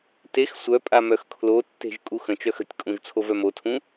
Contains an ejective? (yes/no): yes